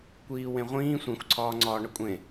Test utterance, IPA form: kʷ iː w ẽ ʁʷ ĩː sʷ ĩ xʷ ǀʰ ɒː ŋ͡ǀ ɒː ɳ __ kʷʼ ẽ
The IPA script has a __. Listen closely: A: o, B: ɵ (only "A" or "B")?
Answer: B